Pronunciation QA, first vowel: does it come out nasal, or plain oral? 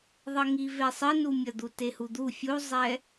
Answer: oral